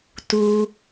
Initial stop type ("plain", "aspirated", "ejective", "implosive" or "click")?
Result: plain